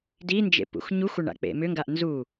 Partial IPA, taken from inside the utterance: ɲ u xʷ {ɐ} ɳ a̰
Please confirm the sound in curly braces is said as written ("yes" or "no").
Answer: yes